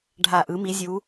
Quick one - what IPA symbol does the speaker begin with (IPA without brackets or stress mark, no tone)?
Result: ɖʱ